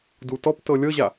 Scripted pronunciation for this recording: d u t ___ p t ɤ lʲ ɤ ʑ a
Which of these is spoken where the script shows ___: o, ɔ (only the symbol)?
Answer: ɔ